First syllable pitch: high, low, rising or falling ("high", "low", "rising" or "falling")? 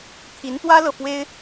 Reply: rising